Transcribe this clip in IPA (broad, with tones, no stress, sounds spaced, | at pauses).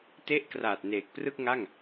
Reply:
t e˦˥ ʔ k r aː˨˩ t̚ n eː˨˩ k̚ p r ɯ˥˩ k̚ ŋ a˥˩ ŋ